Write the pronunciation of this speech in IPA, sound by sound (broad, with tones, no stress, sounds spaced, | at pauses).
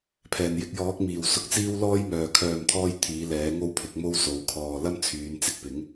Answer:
pʰ ɛː˨˩ n j ɪ˧ k̚ j ɔː˨˥ k̚ m iː˨˩ w s ʊ˧ k̚ t͡s iː˥ w l ɔː˥ j m œː˨ kʰ œː˨ m t̪ʰ ɔː˧ j t̪ʰ iː˨˥ l ɛː˨˥ ŋ o˥ w pʰ ɪ˨˥ k̚ m o˥ w s o˨˧ w kʰ ɔː˧ l ɐ˥ m t͡sʰ yː˨˧ n t͡s ɪ˧ k̚ p ɪ˨˥ ŋ